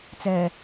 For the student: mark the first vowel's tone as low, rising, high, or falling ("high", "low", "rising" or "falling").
low